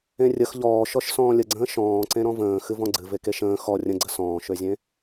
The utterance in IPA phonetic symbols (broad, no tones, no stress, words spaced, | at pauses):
ẽrʲəx ʎɔːʃɔʃ sɔ̃ːlʲəɡ͡ǀə̃ː ʃɔ̃ːǀẽ ɾɔ̃və̃ː xɨvɔ̃ɡ͡ǀɨ vekeʃə̃ː xɔ rʲə̃ɡ͡ǀə sɔ̃ːʃøzʲẽ